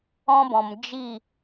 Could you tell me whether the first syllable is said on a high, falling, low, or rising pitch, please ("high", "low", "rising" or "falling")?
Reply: high